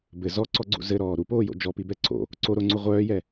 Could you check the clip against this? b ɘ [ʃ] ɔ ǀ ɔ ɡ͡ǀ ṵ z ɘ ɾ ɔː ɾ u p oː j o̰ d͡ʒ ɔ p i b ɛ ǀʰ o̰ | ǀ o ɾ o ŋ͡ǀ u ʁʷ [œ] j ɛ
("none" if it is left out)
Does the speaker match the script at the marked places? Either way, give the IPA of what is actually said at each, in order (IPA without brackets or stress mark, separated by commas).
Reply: z, œː